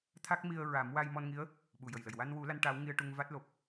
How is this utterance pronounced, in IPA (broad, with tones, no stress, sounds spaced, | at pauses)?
t̪ʰ a˦˥ k̚ m i˧ ə̯ ɹ a˨˩˦ m w a˧ j m ɔ˧ n ŋ i˧˥ ə̯ | ɓ u˨˩ j ə˨˩ j l ə˨˩ j w a˧ n w u˨˩˦ l a˧˥ n ʈ aː˧˥ w ŋ i˧ ə̯ ʈ u˧ ŋ v a˦˥ t̚ l o˨˩ p̚